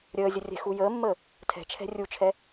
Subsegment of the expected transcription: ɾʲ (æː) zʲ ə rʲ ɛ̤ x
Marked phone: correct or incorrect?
incorrect